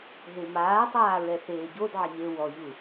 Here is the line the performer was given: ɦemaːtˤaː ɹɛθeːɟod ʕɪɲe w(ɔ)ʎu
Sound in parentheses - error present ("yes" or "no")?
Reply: no